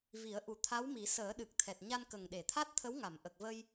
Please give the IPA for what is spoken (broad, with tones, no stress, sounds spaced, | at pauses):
v i˨˩˦ ə̯ ʔ u˨˩˦ t̪ʰ a˧˥ w m i˨˩˦ s əː˨˩˦ ɗ ɨ˨˩ k̚ t̪ʰ ɛ˨˩ t̚ ɲ a˧ n k ə˨˩ ŋ ɗ e˨˩˨ t̪ʰ a˦˥ t̚ t̪ʰ ə˧˥ w ŋ a˨˩˨ m ʔ ə˨˩ k̚ v ə˧ j